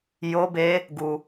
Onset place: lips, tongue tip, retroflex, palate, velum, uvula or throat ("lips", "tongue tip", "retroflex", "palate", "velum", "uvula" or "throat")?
palate